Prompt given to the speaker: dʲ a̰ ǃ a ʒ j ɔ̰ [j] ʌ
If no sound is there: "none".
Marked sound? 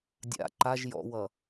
w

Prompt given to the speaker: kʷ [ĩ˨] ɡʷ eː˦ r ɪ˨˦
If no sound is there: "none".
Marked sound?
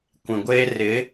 ĩ˨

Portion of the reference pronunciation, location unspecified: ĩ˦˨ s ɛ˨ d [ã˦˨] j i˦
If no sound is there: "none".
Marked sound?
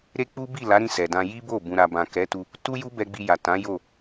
ã˧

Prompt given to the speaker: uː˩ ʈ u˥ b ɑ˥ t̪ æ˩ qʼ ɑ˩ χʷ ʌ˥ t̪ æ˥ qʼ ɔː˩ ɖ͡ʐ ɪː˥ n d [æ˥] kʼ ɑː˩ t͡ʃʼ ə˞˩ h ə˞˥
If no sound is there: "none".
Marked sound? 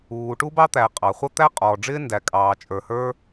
æ˩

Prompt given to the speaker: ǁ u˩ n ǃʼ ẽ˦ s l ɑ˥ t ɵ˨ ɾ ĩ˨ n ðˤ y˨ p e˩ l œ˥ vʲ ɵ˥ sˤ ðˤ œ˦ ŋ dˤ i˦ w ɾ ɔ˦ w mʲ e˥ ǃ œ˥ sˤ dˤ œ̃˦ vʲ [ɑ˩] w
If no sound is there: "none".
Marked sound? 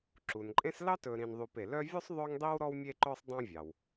ɑ˩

